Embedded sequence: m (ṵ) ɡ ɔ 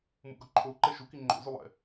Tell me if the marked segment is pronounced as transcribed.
yes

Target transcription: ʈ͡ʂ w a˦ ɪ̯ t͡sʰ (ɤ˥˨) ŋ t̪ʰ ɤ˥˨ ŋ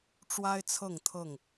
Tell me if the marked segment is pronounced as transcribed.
yes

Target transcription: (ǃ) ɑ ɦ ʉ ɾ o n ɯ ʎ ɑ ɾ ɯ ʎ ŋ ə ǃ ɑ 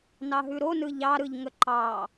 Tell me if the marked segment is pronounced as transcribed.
no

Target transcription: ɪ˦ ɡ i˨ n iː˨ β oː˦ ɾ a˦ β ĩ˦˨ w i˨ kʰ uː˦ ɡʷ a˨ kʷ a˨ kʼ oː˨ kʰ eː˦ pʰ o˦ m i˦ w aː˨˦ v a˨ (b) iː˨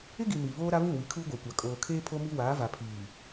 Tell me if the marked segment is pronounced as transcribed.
no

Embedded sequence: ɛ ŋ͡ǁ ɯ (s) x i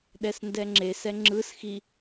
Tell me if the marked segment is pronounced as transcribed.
yes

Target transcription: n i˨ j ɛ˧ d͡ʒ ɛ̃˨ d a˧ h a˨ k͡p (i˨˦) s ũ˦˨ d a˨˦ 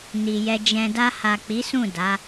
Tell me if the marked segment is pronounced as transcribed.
yes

